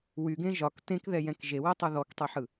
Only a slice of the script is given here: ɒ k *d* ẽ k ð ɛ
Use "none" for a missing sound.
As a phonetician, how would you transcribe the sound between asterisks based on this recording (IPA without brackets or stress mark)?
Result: t